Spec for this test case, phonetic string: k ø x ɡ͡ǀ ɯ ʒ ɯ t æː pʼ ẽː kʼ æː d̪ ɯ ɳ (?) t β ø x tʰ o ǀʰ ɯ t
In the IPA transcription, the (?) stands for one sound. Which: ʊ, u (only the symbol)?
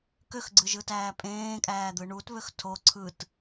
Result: u